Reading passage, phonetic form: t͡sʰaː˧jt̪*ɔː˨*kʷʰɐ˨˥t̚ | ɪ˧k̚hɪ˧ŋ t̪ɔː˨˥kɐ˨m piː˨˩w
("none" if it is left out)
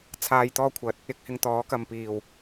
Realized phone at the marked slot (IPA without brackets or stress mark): ɔː˥